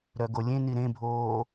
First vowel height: mid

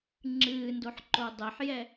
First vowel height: high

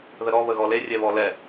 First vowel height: mid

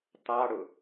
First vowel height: low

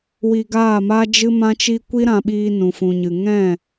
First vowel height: high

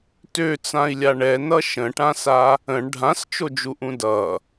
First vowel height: mid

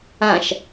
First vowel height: low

